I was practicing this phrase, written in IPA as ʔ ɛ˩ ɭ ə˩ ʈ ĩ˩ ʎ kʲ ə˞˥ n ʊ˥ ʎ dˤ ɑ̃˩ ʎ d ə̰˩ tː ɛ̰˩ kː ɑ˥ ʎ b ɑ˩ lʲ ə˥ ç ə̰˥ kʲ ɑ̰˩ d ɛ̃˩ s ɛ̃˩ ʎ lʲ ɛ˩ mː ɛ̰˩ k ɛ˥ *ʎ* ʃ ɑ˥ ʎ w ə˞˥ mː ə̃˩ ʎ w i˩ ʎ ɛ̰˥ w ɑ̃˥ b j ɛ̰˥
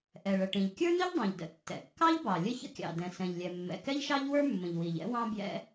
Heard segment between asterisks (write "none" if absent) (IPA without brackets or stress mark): ʎ